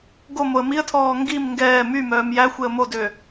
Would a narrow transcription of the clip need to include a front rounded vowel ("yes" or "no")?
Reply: yes